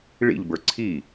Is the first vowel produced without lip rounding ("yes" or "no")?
yes